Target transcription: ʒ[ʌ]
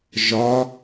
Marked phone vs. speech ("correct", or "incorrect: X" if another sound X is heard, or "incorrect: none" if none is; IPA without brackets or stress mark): incorrect: ɒ